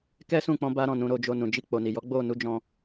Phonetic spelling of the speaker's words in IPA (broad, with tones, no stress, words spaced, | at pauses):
kɛ˦sũ˦˨k͡pɔ̃˧ ba˦ɾɔ̃˦˨ nũ˨˦ɾo˧d͡ʒo˧nũ˨ d͡ʒi˧k͡po˨ni˨jɔ˨˦ ɡ͡bo˦˨ nu˧d͡ʒɔ̃˧